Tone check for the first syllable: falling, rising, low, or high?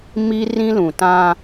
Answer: high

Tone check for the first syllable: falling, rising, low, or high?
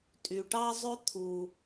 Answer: low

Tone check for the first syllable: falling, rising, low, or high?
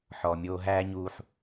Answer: low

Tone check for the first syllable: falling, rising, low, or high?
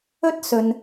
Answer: high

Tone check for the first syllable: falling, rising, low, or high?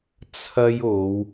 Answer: high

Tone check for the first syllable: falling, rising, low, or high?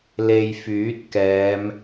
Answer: low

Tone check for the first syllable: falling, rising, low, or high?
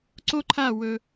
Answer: high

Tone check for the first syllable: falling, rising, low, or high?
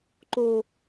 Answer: high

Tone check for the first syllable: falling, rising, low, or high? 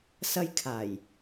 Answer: high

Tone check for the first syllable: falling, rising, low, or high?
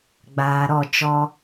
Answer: low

